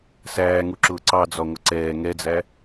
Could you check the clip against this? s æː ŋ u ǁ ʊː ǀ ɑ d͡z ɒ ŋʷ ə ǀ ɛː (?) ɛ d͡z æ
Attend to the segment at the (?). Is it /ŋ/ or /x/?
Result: ŋ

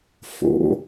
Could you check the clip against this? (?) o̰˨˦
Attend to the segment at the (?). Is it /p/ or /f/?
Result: f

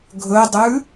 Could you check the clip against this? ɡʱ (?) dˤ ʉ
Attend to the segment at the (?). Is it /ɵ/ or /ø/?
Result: ɵ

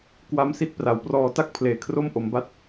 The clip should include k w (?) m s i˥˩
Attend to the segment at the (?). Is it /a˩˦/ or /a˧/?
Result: a˧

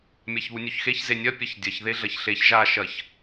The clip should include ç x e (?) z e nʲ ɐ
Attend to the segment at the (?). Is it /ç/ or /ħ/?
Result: ç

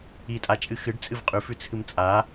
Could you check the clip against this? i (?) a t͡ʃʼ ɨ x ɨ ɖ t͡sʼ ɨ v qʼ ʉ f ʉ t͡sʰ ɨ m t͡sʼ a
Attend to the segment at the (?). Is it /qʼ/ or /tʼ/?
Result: tʼ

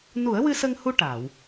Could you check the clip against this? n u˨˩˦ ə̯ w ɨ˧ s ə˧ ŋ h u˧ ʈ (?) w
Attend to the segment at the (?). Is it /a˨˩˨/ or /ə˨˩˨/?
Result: a˨˩˨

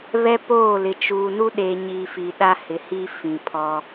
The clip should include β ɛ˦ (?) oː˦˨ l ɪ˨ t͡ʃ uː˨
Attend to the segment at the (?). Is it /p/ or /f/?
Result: p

